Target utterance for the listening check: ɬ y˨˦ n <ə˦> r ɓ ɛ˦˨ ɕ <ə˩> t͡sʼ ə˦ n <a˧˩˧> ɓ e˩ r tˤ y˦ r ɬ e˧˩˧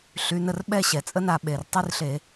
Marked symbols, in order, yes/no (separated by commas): no, no, yes